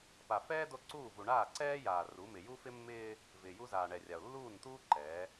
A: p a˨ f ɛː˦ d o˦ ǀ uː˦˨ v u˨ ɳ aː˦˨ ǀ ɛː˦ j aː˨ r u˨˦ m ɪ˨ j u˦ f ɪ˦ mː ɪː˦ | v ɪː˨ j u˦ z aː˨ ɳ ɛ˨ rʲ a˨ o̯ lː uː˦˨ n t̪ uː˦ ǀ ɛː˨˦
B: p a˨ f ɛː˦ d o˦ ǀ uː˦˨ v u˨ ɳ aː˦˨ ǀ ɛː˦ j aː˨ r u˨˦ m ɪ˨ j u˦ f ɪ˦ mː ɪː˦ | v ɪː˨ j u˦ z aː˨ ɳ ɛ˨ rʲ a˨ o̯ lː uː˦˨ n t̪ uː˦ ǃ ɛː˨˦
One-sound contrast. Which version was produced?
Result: B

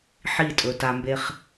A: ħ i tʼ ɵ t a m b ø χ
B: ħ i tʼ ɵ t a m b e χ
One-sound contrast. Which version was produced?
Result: B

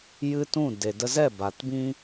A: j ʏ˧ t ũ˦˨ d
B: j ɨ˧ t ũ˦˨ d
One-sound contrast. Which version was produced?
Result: B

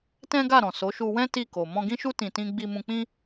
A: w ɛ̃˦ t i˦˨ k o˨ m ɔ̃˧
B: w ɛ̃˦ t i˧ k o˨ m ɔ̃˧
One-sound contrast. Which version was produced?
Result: A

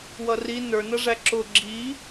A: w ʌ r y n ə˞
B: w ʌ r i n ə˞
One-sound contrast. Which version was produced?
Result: B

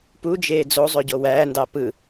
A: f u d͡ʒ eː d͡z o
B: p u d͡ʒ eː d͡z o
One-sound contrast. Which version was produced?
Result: B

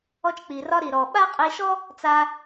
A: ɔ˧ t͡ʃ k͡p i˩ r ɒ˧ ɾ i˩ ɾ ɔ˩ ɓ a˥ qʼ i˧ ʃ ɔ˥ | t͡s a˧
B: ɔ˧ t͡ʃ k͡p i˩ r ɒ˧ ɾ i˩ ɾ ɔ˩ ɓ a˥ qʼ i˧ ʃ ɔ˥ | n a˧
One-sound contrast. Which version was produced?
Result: A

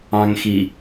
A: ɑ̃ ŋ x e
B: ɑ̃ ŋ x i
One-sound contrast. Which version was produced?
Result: B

